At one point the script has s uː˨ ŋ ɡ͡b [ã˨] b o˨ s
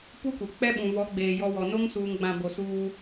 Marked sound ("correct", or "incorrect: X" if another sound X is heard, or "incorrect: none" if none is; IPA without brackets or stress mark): correct